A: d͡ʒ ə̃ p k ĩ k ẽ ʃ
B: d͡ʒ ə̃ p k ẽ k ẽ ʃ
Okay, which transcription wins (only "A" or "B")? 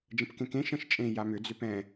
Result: B